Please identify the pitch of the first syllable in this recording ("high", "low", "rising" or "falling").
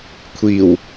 low